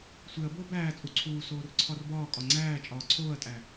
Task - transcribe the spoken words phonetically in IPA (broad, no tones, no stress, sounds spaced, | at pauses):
sʷ e ɐ̯ b oː b æː t͡sʼ u ǀʰ uː s oː r ǀʰ ɒ r b ɒː kʼ ɒ ŋ͡ǀ æː t͡ʃʼ ɒː ǀʰ oː ɐ̯ tʼ æ